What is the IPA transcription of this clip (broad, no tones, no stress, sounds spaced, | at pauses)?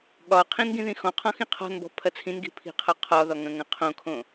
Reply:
ɠ ɒ qʰ ĩ n ɡ ĩ ð ĩ x ɔ̃ qʰ ɔ̃ x ĩ qʰ ɔ̤ n b ɔ̤ pʰ ɐ t͡sʰ ĩ n ɡ i̤ pʰ i̤ qʰ ɒ qʰ ɒ ð ɒ ŋ ɐ̃ ŋ ɐ̃ qʰ õ kʰ õ